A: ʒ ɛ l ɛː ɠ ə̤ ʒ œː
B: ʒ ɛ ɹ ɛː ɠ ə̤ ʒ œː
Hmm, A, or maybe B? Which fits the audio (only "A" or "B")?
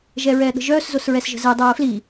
B